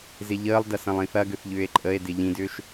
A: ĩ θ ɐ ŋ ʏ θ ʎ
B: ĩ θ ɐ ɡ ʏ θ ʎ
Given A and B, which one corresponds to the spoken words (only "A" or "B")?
B